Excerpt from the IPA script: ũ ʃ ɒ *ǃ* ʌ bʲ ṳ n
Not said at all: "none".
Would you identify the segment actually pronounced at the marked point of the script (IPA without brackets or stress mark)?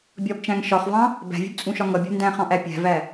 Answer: ŋ